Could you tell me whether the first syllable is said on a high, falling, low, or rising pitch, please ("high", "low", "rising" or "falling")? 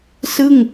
falling